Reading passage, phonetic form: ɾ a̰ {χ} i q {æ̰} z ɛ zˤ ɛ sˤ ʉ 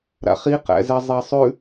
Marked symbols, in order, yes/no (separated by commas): yes, yes